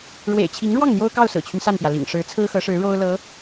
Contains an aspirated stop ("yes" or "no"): yes